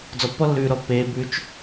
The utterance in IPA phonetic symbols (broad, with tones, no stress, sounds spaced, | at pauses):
d͡z ɔ˧ pː ɔ˥ lː ʉː˧ ɾ ɔ˧ pː eː˧ b ʉ˧ t͡ʃ